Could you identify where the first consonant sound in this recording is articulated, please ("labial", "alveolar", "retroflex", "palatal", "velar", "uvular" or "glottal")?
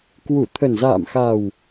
velar